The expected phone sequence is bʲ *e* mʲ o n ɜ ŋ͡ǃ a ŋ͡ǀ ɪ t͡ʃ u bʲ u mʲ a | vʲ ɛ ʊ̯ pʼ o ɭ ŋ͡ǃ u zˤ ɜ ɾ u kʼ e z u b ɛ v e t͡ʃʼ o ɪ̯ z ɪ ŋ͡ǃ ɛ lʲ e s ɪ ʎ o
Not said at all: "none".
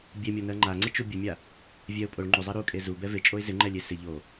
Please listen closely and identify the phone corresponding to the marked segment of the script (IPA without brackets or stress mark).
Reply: e